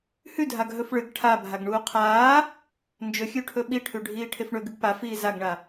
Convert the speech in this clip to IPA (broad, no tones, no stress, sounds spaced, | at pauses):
h ʉ dʱ a ɡ ɦ ɵ f ɭ ɨ ɡ ʈʰ a bʱ a ɡ ɳ uː qʰ aː | n d͡ʒ ɵ xʲ ʉ ʈʰ ɵ ɓ i ʈʰ ʉ ɖʱ iː ʈʰ e f ɳ ɵ ɡ ɨ ɡ p a f iː z a ɡ ɳ a